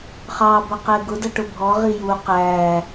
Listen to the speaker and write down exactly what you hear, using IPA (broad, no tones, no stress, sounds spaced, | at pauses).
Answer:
χ ɑ b ʌ q ɛ ɡ ʊ d ʌ ʈ ʊ bʱ ɔ ʁ i j u q æ